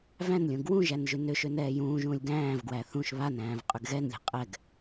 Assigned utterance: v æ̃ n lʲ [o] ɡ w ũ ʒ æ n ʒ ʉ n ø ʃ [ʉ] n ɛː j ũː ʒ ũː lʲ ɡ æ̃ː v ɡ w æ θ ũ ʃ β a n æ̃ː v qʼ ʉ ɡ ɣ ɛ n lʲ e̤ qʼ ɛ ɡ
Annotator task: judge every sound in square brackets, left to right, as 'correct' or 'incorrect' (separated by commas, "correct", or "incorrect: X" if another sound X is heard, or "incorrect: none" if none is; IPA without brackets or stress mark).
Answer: incorrect: õ, incorrect: ø